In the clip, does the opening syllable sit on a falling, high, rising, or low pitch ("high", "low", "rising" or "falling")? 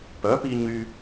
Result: rising